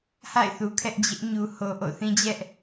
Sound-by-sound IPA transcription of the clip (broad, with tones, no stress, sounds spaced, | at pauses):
h a̰˦˨ ɪ̯ θ u˨ kʰ ɛ˦ ʔ d͡ʑ ɪ˦ ʔ ɲ u˨ h o˨ ʔ o̰˦˨ θ ĩ˦ d͡ʑ ɛ˦ ʔ